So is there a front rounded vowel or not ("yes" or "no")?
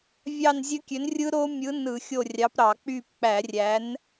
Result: yes